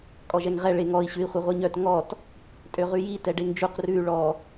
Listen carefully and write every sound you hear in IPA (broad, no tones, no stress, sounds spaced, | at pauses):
kʼ ɔ ʒ ɛ ŋ ʁ ɛ ɭ e ŋ ɔ i̯ ɕ ʉ i̯ χʷ œ ʁʷ i ɲ œ t ŋ ɔ t | tʼ ø ʁ ʉ j i t ɛ ɖ e ŋ d͡ʒ u q r ʉ y̯ ɭ ɔ